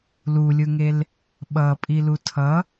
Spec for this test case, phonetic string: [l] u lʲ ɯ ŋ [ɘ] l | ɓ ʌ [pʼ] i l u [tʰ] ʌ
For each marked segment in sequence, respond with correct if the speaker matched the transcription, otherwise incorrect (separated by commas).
correct, incorrect, correct, correct